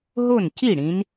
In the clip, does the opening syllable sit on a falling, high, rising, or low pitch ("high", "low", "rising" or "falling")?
falling